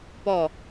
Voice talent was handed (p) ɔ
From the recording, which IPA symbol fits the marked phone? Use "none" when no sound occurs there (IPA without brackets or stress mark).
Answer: p